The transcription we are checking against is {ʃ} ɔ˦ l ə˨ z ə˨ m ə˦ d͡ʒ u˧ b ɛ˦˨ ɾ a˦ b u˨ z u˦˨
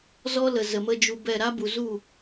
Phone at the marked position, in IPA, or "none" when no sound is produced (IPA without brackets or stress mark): z